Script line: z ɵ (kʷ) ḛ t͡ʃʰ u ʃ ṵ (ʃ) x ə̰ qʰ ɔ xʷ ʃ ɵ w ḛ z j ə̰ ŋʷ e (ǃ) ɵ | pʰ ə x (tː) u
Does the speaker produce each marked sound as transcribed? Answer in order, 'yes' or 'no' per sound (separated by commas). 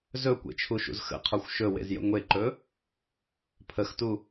yes, no, yes, no